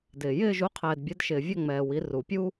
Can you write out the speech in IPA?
dɪː˨ jɪː˦˨ʒu˨˥ qʰɛː˨dbʲɛ˨˥dʃɪː˨ vʲɛ˦˨ŋ͡mɛː˨ wi˨˥ru˨˩˦pʲu˥

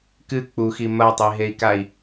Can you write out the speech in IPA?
kɨ k͡puxi mɐtˤiɦei̯kai̯

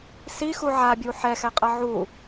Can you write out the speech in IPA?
si xuʕabʲu ħɛxɛqʼʌ ʕu

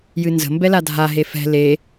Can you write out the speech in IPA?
jɨnzə̤mbɛ ladʱaɦe fɛ̤ le

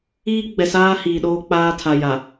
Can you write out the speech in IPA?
iː˦ ɡ͡bɛ˨saː˦ hiː˨ɗoː˦ k͡paː˦tʰa˨ ja˨

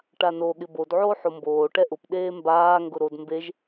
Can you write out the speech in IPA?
ʈano ɠɪbod ʕoːħomboː ʈɛʔʊp ɗeːmbaː ŋɡʊɾod mbeʒ

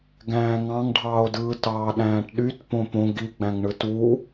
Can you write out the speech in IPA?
ɡæ̃ːŋɑ̃ŋɖʱɑːo̯dɯː tɑːɗæ̃ːʈɗyt põpõ ɡiɡ͡bæ̃ŋ ɳɯtuː

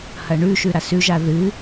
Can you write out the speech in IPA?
hɐɳʉʃʉ ɾasʉʒa ðɨ

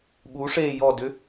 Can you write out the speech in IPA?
ɓu ʂe jɔdʏ

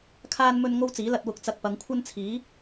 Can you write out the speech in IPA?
kʰaː˧nmɵ˧n ŋo˥wt͡siː˨˥lɐ˧t̚ wʊ˨k̚t͡sɐ˨k̚ pɐ˨˧ŋkʷʰɐ˥nt͡sʰiː˨˥

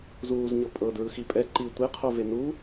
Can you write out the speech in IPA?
zuːzɲɤ pʼɤ dɹɯxipʼɛ ǃi tʷeqʰo venu

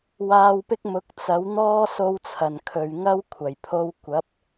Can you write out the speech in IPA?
waː˧wpɪ˥k̚mʊ˨˥k̚ t͡sɐ˨˥w n̪ɔː˥so˧wt͡sʰɐ˨˩n kʰɵ˨ɥ ŋɐ˥wkʷʰɐ˨˩jpʰo˧wkʷɐ˨˥p̚

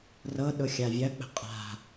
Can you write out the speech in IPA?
rɤɗʊ xʲavʲɐk͡pə̤ qʼa̤

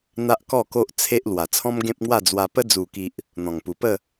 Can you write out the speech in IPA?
n̪a˦ʔkɔ˥˧ko˦ʔt͡sʰe˦ʔ lwa˨˩t͡sʰɔ̃˦mɡẽ˦p̚ŋwa˥˧ d͡zwa˧pə˦ d͡zu˨˩ki˨ʔ | n̪ɔ̃˨˩ŋpu˨˩pə˥˧

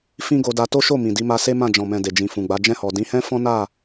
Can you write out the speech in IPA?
fĩ˦ɡo˧da˧ to˦ʃo˦˨ mĩ˨di˨˦ma˧se˦ mã˦˨ d͡ʒɔ̃˨mɛ̃˨ de˨d͡ʒĩ˨fũ˨ɡ͡ba˨˦ d͡ʒɛ̃˦˨hɔ˨ dĩ˨˦hɛ̃˦ fɔ̃˦na˦˨

